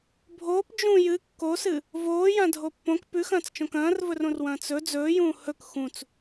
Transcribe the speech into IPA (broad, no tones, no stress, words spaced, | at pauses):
bʱoːp d͡ʒũ jɨ kːosɨ | voːjã dʱopːõk pʉxɐ̃ːt͡st͡ʃõk ɐ̃ːrvɵrõrwɐ̃ː t͡sɵ d͡zɵːjũː hɵk xũt͡s